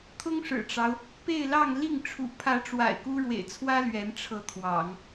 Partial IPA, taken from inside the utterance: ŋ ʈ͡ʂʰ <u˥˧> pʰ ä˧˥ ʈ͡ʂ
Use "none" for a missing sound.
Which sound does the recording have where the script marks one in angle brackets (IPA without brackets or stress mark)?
ṵ˨˩